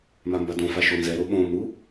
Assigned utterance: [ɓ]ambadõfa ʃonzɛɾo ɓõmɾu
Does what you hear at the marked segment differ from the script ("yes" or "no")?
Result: yes